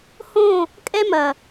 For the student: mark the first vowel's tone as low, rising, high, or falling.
falling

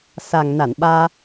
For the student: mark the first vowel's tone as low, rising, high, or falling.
low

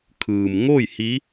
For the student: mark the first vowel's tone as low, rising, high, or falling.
low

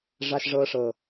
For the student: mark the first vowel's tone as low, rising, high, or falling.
high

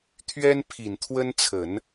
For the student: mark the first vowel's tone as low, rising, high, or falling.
high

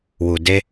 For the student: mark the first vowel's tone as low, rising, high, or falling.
low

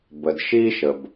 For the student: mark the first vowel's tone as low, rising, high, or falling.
low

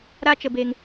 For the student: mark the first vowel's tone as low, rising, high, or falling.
high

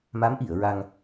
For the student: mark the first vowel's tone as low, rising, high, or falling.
rising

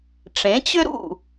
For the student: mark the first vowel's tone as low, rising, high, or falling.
rising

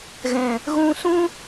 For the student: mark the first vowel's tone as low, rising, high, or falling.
low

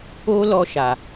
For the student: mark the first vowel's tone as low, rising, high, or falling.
high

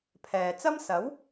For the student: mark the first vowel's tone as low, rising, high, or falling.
low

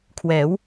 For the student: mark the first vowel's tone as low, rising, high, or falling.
rising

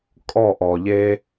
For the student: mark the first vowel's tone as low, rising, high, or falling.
falling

